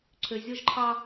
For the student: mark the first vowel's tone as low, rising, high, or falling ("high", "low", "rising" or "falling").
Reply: low